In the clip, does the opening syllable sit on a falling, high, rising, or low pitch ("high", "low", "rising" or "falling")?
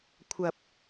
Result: low